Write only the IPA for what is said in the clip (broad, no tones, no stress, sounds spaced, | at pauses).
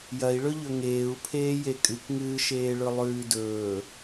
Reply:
j ɐ i̯ ɭ ɵ ʎ ɵ ŋ eː u̯ pʰ eː j e kʼ ɨ k ŋ ɨː ʃ eː ɭ ɵ lˠ ʉː d ɵː